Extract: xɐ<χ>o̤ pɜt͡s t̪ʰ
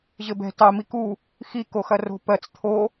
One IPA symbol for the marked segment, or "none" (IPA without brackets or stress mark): r